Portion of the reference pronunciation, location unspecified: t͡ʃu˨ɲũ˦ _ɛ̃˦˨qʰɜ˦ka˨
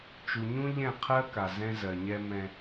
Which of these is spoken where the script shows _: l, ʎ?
ʎ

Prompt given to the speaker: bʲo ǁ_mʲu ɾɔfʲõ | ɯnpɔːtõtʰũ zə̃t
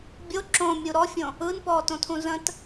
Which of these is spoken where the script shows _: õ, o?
õ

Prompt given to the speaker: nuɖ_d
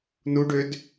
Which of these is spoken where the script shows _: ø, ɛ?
ø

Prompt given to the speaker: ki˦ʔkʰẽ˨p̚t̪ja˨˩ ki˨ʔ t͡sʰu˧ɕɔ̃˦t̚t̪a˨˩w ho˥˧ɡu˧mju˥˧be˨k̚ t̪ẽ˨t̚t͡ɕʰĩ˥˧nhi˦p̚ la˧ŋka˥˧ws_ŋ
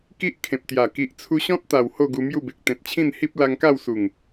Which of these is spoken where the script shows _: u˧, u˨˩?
u˨˩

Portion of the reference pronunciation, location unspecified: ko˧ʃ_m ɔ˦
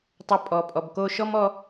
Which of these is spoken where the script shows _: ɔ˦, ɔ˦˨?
ɔ˦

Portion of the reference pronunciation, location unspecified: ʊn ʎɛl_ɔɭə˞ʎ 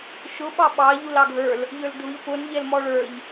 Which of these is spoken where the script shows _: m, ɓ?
m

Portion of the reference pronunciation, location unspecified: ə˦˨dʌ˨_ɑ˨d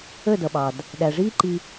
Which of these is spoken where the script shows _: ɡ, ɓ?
ɓ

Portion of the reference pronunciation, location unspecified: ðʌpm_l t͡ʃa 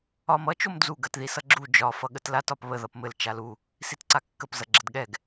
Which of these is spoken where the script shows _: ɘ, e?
ɘ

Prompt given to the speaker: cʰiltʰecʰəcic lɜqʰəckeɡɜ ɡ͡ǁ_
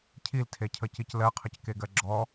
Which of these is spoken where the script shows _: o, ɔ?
ɔ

